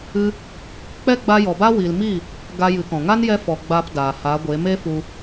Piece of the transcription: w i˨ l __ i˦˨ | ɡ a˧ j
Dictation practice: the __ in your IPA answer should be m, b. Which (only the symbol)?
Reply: m